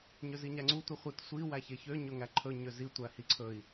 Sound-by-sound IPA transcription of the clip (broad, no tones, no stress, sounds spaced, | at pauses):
ɲ ø z i ɲ æ ŋ͡ǀ u tʷ i χʷ i t sʷ i w æ ç e ç ø ɲ ɵ ŋ æ ǃʰ ɵ ɲ ø z i tʷ æ h i ǀʰ ɵ i̯